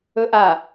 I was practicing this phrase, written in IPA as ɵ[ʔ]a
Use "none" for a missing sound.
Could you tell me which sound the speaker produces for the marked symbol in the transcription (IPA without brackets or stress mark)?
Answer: ʔ